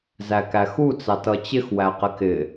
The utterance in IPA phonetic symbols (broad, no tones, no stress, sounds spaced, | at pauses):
z æ k æ x u t͡s ɑ t ʌ t͡ɕ ɪ x w æ q ɪ k ɪ